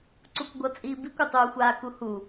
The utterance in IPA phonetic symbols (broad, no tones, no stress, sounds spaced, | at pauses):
ǀ u kʷ ɡʷ ʌ t͡sʼ iː b i kʷ a tˤ uː xʷ aː k u h u